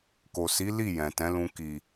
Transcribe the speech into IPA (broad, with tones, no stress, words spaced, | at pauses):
ko˨si˨˦ li˦˨ jɛ̃˨tɛ̃˨˦lũ˧ ki˨